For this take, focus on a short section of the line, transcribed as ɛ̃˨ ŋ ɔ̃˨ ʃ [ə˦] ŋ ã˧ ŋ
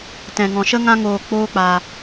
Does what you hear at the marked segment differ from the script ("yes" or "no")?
no